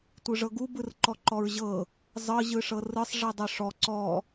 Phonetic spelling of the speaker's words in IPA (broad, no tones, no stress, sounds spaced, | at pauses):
tʷ ɯ ʐ ɤ ɡ u b ɯ r ǃ ɔ ǃ ɔ ɹ ʑ ɤ | zˤ ɤ ʑ ɯ ʂ ɤ r ɯ sˤ ʐ i dˤ ɤ ʂ ɔ ǀ ɔ